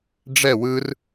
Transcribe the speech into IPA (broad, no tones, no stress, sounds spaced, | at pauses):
ɖ͡ʐ ɛ w ɯ r